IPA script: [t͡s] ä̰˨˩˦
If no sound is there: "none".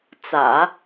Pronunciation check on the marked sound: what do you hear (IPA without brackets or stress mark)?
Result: t͡s